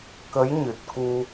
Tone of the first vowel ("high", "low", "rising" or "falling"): rising